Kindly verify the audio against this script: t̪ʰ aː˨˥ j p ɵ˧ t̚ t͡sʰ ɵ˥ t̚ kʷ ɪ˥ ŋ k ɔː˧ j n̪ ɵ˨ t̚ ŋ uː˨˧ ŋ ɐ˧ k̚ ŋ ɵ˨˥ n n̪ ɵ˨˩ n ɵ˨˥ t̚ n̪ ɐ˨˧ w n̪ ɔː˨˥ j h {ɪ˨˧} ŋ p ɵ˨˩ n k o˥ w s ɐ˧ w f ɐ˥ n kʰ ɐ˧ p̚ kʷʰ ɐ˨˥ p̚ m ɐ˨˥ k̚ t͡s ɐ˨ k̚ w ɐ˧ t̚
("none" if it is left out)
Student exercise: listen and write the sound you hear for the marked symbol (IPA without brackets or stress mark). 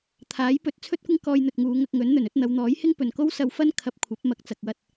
ɪ˥